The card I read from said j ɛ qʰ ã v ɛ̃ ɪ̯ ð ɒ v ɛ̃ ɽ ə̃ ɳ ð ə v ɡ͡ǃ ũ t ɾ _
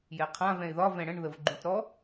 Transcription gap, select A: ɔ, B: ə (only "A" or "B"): A